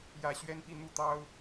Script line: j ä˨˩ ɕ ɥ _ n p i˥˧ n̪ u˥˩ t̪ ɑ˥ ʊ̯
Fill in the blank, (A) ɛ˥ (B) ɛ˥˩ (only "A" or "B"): A